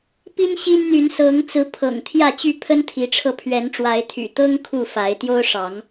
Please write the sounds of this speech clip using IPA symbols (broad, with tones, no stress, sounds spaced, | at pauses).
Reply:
p i˦ n ɕ i˦ n n̪ y˨˦ n s ɤ˨˦ ŋ t͡s ɹ̩˨˦ pʰ ɤ̰˨˩ ŋ t̪ʰ j ä˥˨ t͡ɕ y˥˨ pʰ ə˦ n t̪ʰ i˨˦ ʈ͡ʂʰ ɤ˧ pʰ ɥ ɛ˨˦ n ʈ͡ʂ w a˨˦ ɪ̯ t̪ʰ y̰˨˩ t̪ ɤ˦ ŋ kʰ u˥˨ f a˨˦ ɪ̯ t̪ j o˦ ʊ̯ ʂ ɑ˨˦ ŋ